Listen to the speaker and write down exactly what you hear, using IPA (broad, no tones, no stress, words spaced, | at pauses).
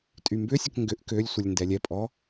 tʼymbʏsʲək ŋɡʏʔ kølʲsʷəlʲ ndɛlʲɛpʼɔ